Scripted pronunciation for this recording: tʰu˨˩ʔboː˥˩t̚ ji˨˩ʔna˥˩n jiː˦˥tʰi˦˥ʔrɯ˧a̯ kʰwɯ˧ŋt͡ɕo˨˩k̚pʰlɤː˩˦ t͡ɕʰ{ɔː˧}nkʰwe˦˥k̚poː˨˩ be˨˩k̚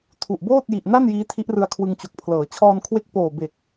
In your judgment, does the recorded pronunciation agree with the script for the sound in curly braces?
yes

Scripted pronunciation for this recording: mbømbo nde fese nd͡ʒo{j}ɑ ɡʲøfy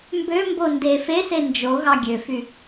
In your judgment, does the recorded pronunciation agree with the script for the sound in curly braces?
no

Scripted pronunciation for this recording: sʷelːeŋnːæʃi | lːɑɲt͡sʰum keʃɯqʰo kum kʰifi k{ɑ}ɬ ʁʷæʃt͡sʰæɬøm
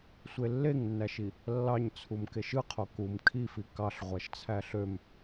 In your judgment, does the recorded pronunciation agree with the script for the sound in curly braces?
yes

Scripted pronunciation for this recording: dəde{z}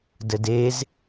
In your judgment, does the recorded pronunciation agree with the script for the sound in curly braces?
yes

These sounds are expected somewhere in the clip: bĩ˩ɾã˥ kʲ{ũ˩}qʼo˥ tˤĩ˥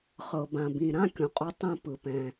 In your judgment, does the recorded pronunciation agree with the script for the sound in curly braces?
no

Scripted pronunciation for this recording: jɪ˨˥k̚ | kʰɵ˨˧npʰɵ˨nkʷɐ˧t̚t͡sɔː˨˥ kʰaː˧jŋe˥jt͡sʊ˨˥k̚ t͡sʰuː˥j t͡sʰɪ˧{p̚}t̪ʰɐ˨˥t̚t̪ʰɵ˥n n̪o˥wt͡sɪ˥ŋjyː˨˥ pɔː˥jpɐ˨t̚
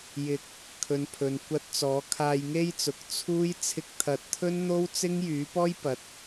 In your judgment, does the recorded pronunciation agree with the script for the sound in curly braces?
no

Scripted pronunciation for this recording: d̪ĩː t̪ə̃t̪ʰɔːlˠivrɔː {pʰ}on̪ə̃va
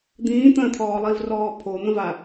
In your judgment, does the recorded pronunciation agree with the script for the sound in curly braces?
yes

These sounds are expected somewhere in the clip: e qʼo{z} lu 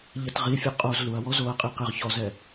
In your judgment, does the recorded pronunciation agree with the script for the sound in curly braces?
yes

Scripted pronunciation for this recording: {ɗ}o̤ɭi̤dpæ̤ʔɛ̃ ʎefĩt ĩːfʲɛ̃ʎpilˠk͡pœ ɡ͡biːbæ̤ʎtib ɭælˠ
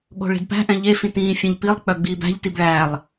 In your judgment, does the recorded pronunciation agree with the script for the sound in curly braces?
no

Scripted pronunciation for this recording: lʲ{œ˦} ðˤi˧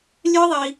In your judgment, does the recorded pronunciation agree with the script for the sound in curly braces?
yes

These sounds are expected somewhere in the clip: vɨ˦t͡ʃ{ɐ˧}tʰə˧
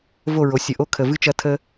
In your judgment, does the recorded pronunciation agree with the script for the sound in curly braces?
yes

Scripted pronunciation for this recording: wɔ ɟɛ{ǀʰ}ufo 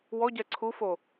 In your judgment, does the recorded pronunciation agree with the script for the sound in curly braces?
yes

